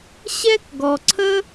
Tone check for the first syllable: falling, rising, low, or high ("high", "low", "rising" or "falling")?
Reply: high